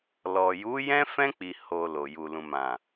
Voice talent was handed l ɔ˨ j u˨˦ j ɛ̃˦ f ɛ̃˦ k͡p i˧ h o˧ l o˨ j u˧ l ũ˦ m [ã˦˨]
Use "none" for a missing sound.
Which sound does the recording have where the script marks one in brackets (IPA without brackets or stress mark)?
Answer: ã˦˨